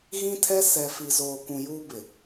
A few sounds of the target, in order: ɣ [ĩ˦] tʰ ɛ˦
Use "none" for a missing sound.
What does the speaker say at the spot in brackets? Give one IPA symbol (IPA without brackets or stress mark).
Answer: ĩ˦